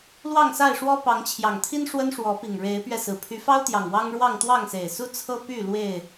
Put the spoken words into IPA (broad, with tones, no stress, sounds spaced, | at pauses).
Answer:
l w ɑ˥˨ ŋ s a˥˨ ɪ̯ ʂ w ɔ˦ p ɑ˨˦ ŋ t͡ɕʰ j ɑ˨˩ ŋ t̪ʰ i˦ n ʂ w ə˦ n ʂ w ɔ˨˦ p i˨˩ ŋ ɻ e˨˦ ɪ̯ p ɥ ɛ˧ s ɹ̩˨˩ pʰ y˨˦ f ɑ˦ ʊ̯ t̪ j ɑ˨˩ ŋ w ɑ˦ ŋ ɻ w ɑ˥˨ ŋ t̪ w ɑ˥˨ ŋ s e˨˩ ɪ̯ s u˦ t͡sʰ ɤ˦ p y˥˨ l w e˥˨ ɪ̯